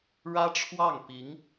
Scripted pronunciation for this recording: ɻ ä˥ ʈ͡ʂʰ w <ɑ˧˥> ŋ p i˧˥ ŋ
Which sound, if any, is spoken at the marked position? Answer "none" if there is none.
ɑ˥˩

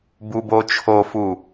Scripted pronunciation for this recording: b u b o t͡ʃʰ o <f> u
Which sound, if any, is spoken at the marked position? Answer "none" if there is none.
f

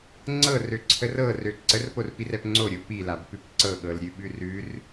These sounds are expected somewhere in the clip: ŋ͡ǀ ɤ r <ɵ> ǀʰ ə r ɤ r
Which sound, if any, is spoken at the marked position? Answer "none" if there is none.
ø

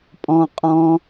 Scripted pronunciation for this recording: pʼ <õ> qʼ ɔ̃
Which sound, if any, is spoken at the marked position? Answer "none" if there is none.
ɔ̃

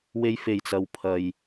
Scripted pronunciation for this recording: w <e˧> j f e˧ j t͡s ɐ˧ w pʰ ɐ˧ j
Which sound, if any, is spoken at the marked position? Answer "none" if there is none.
e˥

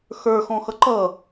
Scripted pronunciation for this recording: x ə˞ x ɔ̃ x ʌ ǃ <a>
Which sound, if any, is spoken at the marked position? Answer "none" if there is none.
ʌ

